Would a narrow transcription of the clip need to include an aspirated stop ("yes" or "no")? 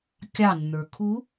yes